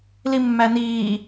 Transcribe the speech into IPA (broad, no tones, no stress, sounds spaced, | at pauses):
l i mː æ n iː